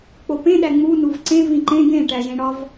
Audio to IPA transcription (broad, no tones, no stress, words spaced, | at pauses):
k͡popẽ ɗæŋ͡mu nuvǀẽ vĩǃẽ ɡẽʈæʒẽ ɽɒv